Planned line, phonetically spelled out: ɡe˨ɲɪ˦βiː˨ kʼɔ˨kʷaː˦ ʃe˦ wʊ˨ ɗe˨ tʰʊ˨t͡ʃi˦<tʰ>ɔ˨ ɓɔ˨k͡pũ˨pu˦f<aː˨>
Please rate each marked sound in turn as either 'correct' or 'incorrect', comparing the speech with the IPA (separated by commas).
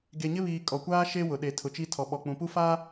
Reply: correct, incorrect